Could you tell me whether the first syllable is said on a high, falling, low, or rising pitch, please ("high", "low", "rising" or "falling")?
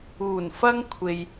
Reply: low